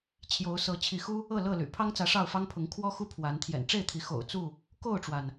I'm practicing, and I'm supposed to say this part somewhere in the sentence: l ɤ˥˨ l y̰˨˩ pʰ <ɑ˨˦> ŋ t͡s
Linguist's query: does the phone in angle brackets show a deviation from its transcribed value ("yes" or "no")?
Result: yes